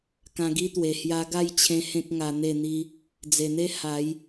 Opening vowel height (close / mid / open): open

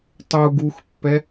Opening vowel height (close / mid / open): close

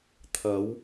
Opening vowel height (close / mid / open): open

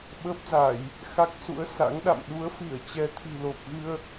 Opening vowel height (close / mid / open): mid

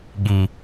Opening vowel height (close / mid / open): close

